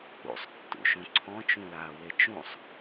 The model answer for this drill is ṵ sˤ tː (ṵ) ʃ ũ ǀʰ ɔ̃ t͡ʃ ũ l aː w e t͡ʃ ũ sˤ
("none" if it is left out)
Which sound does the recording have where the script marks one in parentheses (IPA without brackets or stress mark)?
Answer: ṵ